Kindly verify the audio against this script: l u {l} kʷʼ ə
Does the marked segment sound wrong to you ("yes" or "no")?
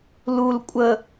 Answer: no